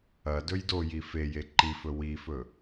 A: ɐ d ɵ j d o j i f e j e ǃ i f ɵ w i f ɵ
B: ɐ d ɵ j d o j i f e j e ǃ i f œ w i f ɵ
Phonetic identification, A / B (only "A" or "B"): A